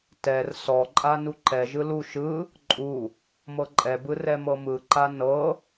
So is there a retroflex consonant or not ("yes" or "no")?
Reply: no